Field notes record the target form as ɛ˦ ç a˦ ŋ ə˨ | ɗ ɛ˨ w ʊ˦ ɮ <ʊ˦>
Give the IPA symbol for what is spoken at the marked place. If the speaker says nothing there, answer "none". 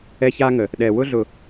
ʊ˨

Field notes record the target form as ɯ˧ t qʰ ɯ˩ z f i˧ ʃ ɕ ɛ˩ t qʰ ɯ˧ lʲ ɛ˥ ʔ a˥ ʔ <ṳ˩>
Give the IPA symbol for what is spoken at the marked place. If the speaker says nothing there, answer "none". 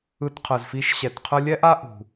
ṳ˩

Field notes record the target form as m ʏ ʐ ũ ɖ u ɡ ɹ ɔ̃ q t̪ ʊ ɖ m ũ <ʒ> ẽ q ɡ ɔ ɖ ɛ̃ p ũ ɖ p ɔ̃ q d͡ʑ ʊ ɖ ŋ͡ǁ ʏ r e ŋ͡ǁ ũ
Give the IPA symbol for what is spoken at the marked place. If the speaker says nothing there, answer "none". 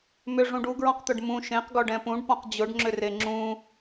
ʃ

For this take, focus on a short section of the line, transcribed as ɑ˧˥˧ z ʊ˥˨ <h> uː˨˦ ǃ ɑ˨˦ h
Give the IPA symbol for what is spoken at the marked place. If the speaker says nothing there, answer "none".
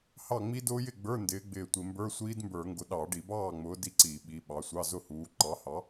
h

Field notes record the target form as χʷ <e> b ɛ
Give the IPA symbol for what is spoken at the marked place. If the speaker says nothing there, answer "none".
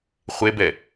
e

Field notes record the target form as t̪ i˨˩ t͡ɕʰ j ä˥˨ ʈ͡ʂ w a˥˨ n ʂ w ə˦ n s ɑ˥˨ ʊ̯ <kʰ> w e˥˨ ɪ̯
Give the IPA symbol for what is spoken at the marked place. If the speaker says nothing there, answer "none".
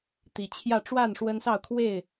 kʰ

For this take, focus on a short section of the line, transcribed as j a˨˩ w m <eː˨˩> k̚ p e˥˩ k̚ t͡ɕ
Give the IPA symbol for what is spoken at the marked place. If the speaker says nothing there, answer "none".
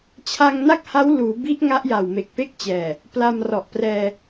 e˨˩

